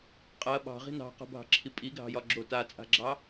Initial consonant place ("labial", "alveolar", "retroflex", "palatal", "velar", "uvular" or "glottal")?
uvular